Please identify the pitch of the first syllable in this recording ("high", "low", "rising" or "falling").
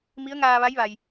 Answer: rising